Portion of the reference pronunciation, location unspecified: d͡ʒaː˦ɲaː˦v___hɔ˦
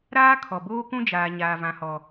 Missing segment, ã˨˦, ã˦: ã˦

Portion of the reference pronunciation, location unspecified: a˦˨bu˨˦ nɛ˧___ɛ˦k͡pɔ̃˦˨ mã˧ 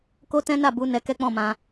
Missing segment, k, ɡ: k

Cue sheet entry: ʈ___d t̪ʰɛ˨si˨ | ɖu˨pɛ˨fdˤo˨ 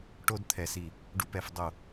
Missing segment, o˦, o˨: o˦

